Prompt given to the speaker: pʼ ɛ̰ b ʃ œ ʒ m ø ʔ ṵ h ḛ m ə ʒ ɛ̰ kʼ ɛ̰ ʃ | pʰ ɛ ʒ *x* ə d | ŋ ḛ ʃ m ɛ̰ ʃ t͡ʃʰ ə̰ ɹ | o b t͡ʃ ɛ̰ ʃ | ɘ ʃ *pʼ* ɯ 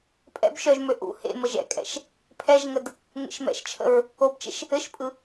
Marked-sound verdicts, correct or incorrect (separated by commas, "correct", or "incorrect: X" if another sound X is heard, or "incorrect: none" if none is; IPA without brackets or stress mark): incorrect: ŋ, correct